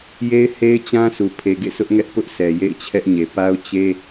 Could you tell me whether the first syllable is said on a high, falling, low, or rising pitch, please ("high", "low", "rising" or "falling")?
high